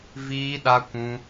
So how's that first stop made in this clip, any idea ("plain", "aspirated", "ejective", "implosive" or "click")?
implosive